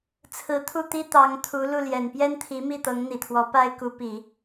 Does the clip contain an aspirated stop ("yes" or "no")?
yes